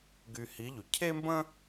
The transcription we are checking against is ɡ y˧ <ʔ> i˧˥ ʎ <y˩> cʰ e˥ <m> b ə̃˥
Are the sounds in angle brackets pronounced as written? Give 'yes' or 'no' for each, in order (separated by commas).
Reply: no, yes, yes